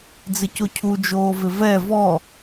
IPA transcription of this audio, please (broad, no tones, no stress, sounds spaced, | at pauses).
d͡z ɪ c o cʰ u d͡ʒ oː v ɪ v ɛ v ɔ